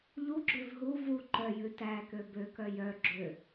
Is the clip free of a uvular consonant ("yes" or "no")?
yes